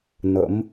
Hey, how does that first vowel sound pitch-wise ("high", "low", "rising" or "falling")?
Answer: rising